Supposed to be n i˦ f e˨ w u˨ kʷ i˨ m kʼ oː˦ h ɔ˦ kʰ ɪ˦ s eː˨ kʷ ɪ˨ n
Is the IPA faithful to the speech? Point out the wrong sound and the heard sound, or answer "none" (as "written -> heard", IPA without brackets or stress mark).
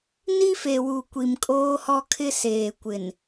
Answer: none